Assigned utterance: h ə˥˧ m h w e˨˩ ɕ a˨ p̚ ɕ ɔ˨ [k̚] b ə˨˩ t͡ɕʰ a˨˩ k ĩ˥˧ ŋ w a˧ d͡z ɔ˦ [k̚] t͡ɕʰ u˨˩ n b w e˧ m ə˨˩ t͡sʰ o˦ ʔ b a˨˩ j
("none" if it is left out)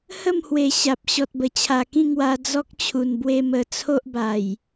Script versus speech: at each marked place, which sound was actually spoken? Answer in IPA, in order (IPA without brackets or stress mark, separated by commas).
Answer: t̚, k̚